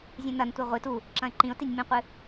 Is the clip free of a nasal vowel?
no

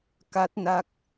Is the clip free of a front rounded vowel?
yes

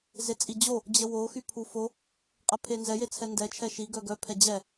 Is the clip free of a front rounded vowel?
no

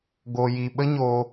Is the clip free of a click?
yes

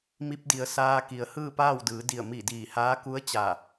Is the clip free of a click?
yes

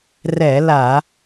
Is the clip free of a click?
yes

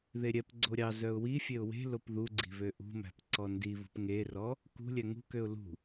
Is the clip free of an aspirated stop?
yes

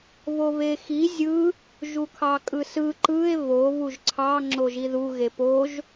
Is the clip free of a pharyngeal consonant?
yes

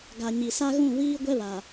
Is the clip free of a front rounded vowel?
yes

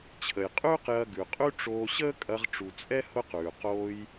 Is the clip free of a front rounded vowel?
yes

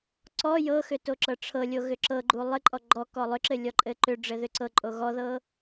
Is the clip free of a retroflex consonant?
no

